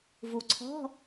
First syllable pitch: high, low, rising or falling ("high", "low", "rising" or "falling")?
low